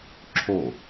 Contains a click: yes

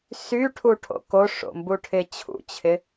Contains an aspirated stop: yes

